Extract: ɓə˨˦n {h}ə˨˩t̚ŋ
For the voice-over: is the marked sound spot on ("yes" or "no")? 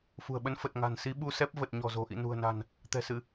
no